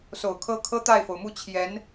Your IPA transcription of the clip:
s o˨˩ ʊ̯ kʰ ɤ˥ kʰ ɤ˥ t̪ a˥˩ ɪ̯ f o˩ ʊ̯ m u˥˩ t͡ɕʰ j ɛ˧˥ n

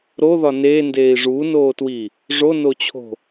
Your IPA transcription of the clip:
ɾ o ð ɒ n eː n d eː i̯ ʐ uː n oː t w i | ʐ o n o t͡ɕʰ o̤

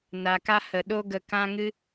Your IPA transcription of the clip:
n a˨ k a˧ h ə˨ ɗ o˦ ɡ ə˧ k ã˦ ŋ ɨ˦

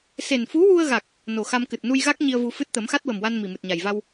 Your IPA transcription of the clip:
s e˨˩ n f u˧˥ w u˧ ə̯ ɣ a˨˩ k̚ | n o˨˩ x a˧ m k ɨ˨˩ t̚ n u˧ j ɣ a˦˥ k̚ ɲ i˧ ə̯ v u˧ f ɨ˦˥ t̚ t̪ ə˨˩˦ m x a˦˥ t̚ w ə˨˩ m w a˧ n m i˨˩ m ɨ˨˩ t̚ ɲ a˨˩ j v a˧ w

